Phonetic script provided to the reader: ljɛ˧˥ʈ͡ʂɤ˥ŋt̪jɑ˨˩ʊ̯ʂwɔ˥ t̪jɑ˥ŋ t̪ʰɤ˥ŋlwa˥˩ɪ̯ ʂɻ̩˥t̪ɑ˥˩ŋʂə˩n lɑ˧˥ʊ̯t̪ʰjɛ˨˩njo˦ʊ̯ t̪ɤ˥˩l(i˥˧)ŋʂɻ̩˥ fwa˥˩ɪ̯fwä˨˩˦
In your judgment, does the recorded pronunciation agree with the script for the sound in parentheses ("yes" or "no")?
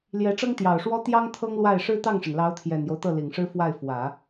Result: no